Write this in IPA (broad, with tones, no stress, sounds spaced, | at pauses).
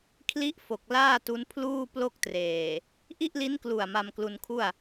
kʰ l i˦˥ ʔ f o˨˩ k̚ l aː˥˩ t u˦˥ n pʰ l uː˥˩ p l o˥˩ k̚ t r eː˨˩ | ʔ i˥˩ ʔ l i˦˥ n k l u˨˩ a̯ m a˧ m k l u˧ n kʰ u˥˩ a̯